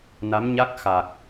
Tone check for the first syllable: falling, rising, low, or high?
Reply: rising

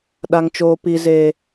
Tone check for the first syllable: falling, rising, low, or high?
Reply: high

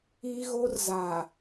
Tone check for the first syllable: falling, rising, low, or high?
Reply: high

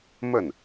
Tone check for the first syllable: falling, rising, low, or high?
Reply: falling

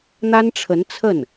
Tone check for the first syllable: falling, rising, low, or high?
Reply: high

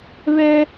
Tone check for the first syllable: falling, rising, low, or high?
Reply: high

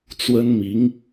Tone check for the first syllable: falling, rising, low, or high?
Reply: high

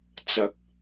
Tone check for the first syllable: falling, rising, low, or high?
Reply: rising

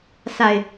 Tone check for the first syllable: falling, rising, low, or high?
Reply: low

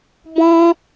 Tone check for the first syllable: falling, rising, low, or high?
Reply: high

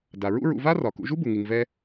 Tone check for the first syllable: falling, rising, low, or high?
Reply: low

